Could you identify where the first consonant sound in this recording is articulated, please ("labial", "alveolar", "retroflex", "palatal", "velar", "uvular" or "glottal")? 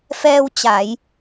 labial